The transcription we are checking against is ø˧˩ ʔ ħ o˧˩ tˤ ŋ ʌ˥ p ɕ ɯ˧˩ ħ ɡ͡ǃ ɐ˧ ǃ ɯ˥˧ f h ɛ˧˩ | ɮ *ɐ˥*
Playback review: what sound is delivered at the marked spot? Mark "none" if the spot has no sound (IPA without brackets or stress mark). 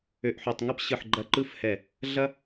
ɐ˥